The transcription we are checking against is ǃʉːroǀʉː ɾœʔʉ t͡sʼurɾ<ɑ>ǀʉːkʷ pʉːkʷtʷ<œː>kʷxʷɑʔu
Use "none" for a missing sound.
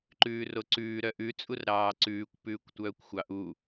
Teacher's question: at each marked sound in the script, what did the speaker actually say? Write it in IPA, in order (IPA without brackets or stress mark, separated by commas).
ɑː, œː